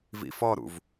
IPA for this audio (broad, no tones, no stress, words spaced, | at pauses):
vḭfɔɾṵv